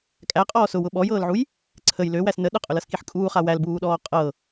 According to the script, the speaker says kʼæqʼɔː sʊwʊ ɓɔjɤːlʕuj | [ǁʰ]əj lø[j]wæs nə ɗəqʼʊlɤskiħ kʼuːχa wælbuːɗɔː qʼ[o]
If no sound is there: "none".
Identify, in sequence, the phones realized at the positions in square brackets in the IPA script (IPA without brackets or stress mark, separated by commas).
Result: ǀʰ, none, ɤ